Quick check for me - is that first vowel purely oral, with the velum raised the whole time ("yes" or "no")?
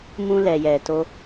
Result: no